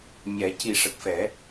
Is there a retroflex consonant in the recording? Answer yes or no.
yes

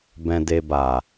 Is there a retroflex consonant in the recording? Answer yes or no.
no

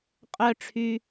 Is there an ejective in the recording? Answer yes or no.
yes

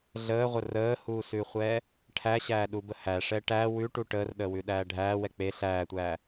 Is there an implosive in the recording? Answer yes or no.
yes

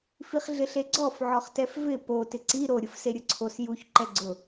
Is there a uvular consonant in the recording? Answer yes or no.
yes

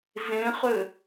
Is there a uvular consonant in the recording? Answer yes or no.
yes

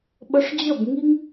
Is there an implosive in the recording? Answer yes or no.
yes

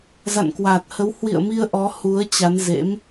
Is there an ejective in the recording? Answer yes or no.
no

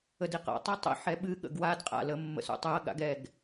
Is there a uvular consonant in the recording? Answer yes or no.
yes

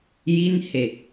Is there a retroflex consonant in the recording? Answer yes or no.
no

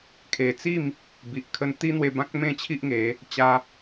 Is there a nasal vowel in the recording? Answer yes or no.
yes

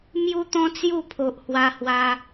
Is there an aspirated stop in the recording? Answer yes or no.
yes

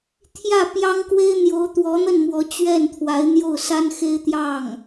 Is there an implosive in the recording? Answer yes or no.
no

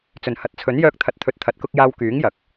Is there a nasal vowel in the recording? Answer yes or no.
no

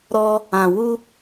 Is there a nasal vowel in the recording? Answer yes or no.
yes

